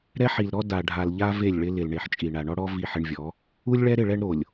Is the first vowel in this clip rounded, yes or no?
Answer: no